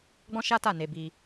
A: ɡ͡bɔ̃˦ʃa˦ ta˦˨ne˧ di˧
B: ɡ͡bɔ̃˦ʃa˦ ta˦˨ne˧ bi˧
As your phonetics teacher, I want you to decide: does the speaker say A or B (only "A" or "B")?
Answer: B